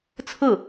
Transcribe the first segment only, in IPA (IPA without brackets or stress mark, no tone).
t͡sʰ